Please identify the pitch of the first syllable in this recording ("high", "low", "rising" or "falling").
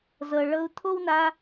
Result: low